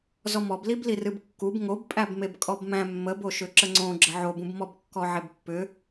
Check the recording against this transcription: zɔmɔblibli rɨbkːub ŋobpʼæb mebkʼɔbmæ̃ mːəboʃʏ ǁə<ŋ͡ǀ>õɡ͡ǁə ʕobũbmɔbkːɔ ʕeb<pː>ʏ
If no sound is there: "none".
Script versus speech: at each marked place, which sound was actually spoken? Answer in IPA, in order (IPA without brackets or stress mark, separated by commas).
ŋ͡ǀ, pː